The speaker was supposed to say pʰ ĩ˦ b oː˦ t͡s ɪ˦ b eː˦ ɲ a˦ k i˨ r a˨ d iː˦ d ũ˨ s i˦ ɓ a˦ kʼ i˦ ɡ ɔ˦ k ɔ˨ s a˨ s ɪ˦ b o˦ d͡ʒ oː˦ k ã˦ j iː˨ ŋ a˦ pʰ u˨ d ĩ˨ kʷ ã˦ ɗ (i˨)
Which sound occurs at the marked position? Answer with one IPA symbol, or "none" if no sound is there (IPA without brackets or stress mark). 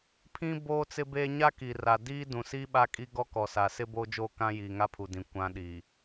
i˨